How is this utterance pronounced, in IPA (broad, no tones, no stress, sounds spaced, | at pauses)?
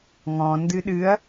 ŋ ɔ̃ n d ɨ ɗ ɨ ɐ̯